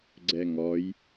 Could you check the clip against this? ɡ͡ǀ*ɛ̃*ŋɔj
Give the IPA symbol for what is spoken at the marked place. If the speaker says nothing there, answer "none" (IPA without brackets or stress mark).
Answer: ɛ